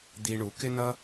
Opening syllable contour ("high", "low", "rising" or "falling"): low